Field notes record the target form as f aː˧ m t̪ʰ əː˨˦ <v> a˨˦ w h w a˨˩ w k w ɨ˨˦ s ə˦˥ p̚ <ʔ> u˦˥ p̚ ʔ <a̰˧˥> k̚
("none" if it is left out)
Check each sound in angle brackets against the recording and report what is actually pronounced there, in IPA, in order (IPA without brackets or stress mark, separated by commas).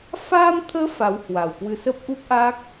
f, ʔ, a˦˥